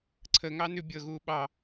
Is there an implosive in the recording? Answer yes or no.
yes